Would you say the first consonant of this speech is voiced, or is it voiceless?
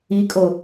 voiceless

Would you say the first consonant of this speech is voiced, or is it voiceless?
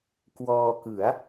voiceless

